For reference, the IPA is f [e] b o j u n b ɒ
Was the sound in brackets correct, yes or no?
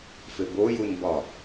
yes